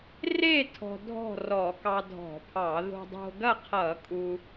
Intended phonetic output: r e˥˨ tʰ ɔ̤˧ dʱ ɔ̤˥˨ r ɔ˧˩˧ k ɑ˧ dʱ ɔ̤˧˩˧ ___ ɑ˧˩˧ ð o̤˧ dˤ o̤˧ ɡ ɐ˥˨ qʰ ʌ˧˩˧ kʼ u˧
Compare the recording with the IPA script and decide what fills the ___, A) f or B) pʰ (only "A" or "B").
B